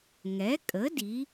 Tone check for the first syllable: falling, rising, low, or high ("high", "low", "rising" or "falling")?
rising